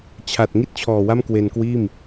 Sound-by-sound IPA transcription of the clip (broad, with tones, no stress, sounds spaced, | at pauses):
t͡ɕʰ a˨˩ t̚ ŋ i˥˩ t̚ t͡ɕʰ ɔː˨˩ w a˥˩ m k w e˧ n k w iː˥˩ m